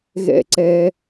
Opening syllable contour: high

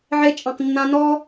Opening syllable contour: high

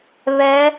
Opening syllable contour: rising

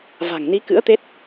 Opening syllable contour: low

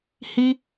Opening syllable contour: high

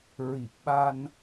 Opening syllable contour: low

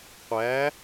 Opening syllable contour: rising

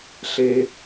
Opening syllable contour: low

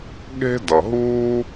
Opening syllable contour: high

